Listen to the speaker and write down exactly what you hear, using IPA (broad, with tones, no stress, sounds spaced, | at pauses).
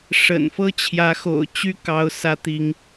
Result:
ʂ ə̰˨˩ n f ɤ˥ t͡ɕʰ j ä˧˥ x o̰˨˩ ʊ̯ t͡ɕ y˥ k ɑ˧˥ ʊ̯ s ä˧˥ t̪ i˧˥ ŋ